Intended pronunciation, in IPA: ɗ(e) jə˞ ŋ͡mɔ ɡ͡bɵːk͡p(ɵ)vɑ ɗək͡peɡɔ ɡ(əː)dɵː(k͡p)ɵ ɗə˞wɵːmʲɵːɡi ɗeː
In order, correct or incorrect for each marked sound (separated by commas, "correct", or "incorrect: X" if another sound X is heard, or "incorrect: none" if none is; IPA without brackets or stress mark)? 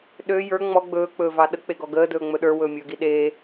incorrect: ø, incorrect: ɵː, correct, incorrect: ŋ͡m